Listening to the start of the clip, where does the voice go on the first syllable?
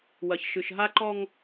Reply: low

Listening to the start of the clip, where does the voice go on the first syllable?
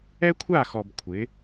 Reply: high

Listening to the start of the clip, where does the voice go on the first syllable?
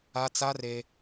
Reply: high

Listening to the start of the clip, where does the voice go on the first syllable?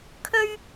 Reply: high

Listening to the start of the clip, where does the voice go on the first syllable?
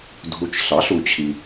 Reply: low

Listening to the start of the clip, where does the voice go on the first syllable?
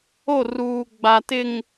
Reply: falling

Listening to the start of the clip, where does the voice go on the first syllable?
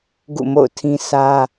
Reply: falling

